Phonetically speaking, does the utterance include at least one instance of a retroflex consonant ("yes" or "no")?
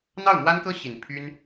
no